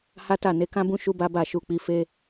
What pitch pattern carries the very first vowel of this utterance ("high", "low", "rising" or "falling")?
high